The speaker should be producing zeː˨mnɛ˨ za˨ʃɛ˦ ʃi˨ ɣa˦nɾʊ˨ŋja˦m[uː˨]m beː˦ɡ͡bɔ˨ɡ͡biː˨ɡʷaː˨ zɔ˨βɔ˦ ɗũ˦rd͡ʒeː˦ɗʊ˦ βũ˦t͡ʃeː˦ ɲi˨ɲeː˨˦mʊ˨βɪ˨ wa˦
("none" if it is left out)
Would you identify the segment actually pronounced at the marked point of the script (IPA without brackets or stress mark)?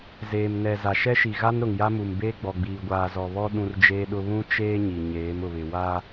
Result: u˨